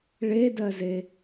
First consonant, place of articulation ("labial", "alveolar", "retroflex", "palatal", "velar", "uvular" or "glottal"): retroflex